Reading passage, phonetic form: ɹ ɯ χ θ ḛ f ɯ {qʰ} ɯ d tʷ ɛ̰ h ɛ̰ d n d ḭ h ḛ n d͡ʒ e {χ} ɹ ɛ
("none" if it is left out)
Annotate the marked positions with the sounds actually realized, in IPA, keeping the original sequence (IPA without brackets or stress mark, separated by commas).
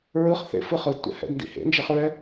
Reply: χ, χ